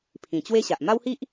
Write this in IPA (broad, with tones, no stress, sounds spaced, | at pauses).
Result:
pʰ ĩ˨˩ t͡ɕ w e˦ ɕ a˨ ʔ m a˦ w h i˦ ʔ